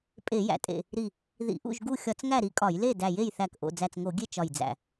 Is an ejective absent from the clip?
no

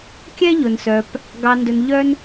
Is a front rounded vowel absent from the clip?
no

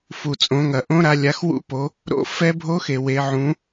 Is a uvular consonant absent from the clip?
yes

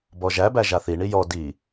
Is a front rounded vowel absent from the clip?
yes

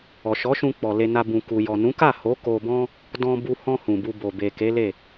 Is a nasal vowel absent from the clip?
no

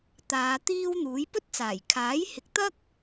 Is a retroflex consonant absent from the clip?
yes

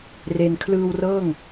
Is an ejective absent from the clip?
yes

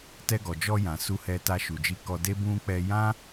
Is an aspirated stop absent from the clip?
yes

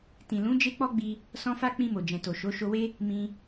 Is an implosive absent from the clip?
yes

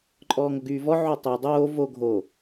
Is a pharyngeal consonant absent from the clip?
no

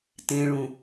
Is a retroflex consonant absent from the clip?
no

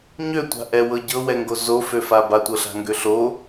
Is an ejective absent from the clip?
yes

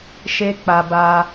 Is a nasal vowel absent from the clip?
yes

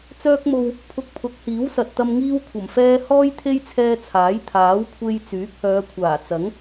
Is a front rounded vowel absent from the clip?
no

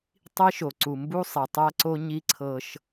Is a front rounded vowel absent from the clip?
yes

